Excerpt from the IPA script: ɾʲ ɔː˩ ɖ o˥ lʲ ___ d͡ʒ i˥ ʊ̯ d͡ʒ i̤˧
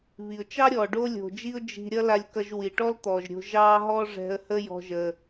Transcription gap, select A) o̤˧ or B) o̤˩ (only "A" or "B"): B